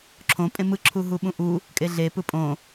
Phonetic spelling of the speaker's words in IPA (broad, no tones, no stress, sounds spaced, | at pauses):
ǁʰ õ pʼ ẽ m ɯ ǁʰ u ɦ u ɓ ũ ʔ u | kʼ e ɮ e p ɯ pʼ õ